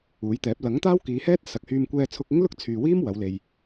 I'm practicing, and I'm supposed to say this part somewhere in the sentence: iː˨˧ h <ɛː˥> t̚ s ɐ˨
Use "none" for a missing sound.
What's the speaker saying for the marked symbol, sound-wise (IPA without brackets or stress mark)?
ɛː˥